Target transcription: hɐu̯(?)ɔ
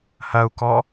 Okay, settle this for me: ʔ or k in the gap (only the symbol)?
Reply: k